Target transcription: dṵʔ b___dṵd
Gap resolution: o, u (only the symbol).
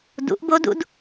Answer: o